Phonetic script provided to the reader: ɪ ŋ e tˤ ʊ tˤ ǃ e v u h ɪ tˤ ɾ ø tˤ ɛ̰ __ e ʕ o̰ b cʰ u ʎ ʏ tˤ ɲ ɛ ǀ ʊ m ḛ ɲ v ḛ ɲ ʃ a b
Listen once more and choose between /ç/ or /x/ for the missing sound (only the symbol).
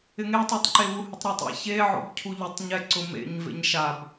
ç